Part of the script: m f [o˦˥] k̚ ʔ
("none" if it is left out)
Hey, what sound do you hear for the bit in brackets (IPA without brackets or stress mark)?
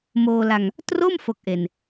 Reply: o˦˥